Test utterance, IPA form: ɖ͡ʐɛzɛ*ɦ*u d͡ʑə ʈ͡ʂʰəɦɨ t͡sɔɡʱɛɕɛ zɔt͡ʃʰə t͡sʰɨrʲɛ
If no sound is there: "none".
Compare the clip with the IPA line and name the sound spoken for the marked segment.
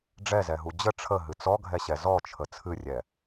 ɦ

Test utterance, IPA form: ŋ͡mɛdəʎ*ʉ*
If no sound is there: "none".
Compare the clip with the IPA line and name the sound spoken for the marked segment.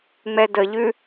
ʉ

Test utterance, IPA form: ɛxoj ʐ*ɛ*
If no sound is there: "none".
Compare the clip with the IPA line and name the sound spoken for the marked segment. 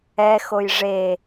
e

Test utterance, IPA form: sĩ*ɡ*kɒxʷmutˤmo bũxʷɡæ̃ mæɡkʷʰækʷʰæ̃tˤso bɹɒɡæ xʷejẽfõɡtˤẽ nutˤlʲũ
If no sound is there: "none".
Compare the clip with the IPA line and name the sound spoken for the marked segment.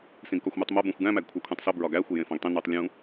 ɡ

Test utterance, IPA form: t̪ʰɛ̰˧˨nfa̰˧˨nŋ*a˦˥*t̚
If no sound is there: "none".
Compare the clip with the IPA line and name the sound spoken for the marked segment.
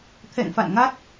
a˦˥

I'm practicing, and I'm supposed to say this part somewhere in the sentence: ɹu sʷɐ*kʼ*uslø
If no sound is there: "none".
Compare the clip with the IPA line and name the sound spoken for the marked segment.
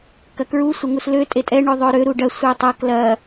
ŋ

